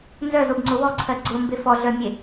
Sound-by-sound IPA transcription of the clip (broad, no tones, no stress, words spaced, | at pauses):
nzœzobŋ͡ǀʊ wɔǀʰɜ ɡ͡ǀʊmbe fɔɮœmʲe